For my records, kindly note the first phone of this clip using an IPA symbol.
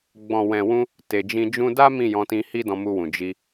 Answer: ɡ͡b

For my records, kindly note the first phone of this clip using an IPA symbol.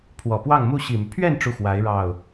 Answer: pʰ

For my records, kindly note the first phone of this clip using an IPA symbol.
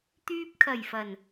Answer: t̪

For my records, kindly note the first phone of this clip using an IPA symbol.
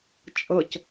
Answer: t͡ʃʼ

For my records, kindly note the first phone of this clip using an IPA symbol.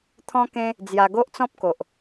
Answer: t̪ʰ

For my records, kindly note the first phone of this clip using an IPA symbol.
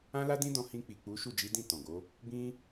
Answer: ã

